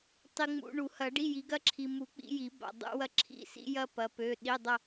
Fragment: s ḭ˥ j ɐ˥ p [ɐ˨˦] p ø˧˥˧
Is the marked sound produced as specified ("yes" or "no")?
yes